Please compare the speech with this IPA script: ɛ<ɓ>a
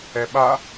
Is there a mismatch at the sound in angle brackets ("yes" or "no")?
no